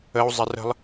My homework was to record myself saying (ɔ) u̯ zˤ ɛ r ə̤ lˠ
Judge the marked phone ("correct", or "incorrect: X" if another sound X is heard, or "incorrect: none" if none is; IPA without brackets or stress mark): incorrect: ə